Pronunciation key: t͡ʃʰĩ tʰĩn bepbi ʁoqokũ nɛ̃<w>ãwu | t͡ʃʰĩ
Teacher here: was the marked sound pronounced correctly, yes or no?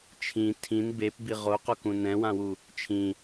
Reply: yes